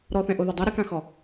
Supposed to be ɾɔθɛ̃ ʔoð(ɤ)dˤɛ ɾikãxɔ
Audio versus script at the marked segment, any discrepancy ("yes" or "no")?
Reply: no